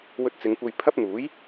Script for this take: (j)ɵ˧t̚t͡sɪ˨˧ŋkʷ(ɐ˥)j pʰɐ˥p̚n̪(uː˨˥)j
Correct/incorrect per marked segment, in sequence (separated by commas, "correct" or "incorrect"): incorrect, incorrect, correct